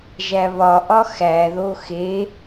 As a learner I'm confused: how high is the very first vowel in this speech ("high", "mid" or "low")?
low